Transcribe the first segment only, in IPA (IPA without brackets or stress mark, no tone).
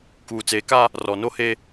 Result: k